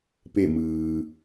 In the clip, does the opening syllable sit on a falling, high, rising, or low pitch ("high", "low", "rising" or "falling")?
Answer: falling